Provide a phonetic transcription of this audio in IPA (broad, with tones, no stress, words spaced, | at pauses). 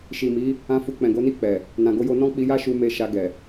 ʃi˨mi˨˦ | ã˧fu˨k͡pɛ̃˨ ɡo˨˦ni˦˨k͡pɛ˨ | nã˨ɡo˧jo˧nɔ̃˦ k͡pi˧ja˦ʃu˧ me˧ ʃa˧ ɡɛ˨